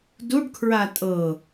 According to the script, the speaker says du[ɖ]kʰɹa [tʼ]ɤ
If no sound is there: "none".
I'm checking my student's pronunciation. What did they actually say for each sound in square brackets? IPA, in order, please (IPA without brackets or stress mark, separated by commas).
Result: ɖ, tʼ